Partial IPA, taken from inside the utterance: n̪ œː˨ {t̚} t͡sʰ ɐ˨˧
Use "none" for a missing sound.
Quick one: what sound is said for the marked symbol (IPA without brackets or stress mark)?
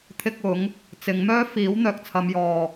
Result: k̚